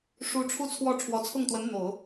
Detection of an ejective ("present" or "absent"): absent